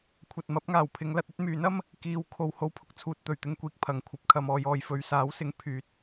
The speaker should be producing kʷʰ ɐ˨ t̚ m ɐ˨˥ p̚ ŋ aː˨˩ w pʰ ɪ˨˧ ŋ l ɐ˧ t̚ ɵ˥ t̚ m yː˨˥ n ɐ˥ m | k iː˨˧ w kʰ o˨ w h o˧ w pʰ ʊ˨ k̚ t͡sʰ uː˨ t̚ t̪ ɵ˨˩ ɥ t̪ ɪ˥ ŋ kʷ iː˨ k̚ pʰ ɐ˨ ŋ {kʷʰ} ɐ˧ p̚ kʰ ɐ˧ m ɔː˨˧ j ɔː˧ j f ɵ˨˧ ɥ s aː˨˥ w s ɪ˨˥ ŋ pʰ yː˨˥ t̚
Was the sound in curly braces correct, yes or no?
yes